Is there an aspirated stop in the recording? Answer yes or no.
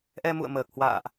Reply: no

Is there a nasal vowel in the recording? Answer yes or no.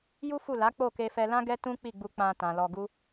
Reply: yes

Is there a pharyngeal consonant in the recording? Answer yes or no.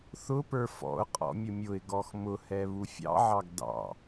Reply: yes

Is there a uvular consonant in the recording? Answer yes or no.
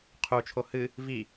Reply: yes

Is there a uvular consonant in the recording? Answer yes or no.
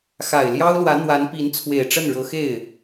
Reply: no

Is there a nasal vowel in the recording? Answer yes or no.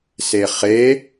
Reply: no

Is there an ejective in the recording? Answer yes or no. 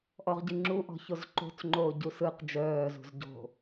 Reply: no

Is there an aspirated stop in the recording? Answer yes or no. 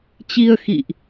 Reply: no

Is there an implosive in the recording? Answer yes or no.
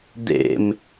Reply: no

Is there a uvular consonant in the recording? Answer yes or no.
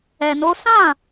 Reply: no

